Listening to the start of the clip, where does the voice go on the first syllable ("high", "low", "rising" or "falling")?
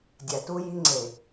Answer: low